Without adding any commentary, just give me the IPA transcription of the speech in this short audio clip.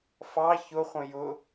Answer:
fɑ çʊχʷə̃ jʊ

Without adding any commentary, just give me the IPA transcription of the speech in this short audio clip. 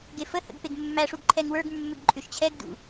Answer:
ɡefəhə̰ɡ peɡmːæʂuɡ ǃʰɛŋwə˞ɡmːʏɡ ǃʼʏʃt͡ɕʰɛɡdṵ

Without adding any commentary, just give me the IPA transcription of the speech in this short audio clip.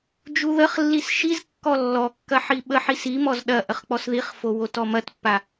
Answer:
d͡ʒuðəχlːis ʃizkːɔ lːɔkːɐ ħiɓəħis imɔz ɗɐ ʔəχk͡pɔsðiχfo wotɔmɐtpːa

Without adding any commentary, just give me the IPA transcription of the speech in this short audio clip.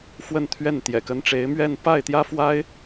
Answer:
fwə˥˧nt̪ʰɥɛ˥˩n t̪jɛ̰˨˩kə˧˥nʈ͡ʂe˧˥ɪ̯mɥɛ˥˧n pa˥˩ɪ̯t̪jä˥fwa˥ɪ̯

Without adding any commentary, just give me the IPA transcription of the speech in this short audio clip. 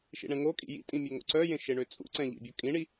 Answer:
ʃḭɳɛ̃ŋokʼḭ jḭtʼĩ mʲøŋo̰ǀœjẽ ʃeɳøt͡sʼṵǀɛ̃ ʎḭbʲo kʼĩɳi

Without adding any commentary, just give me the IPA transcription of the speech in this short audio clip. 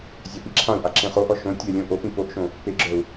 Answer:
zʲapiǁʰãu̯ʔa ǁẽχoʔɔ ʃõ tʲœlʲõ ʔopĩ poʔʃõ | peɡ͡ǁœu̯

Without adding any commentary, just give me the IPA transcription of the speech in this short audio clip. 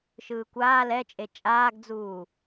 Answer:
ʃɯːkʷaː lɛt͡ʃʼe t͡ʃʼaːɡd͡zuː

